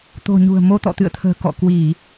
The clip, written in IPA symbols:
t̪o̤˨˩ɲṳ˨˩ə̯ mo˧t̪ɔ̰˧˨t̪ɨ̰˧˨ə̯t̪ʰə̤ː˨˩ kɔ̰˧˨kwi˧˩˨

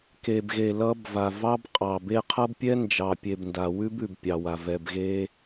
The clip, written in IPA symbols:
ke˨bɣe˨ lʌ˦b va˨vɑ˦bqʼɑ˨be˦ qʰʌ˦bpʲɛ˦nd͡ʒɑ˨ pʲe˨bnda˨wʉ˦b ʉ˨bpʲɑ˨wa˨ vɛ˨bɣe˦

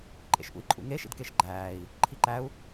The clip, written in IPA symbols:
ǃʼḛʃʔṵi̯ǃʼṵŋe ʃḭdkeʃɡ͡ǃæːi̯ | ǃʰiǃæu̯

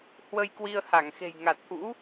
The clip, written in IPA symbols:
hwə˧jkwi˧ə̯ha˧˩ŋ xe̤˨˩jŋa˨˩t̚ʔṵ˧˥

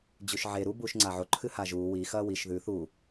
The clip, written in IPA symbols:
d͡ʑʉʃʕe ɾu buːʃŋ͡ǀaʕo ǃʰɨhaʒuː wi xɐːwiʃ ðʉ θu

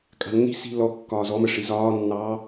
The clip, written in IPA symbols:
kʼa̤nːi̤si̤ lɔkːɒː zɔmə ʂizɒːnːɑː

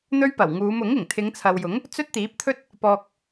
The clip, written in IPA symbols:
n̪ɵ˥ɥpɐ˨˩w ŋuː˨˧mʊ˨˥ŋɪ˨˩ŋ t̪ʰɪ˨˧ŋt͡sʰɐ˨wjʊ˨˥ŋ | t͡sɵ˥t̚t̪iː˨˥p̚t̪ʰɵ˥t̚ | pɔː˨k̚

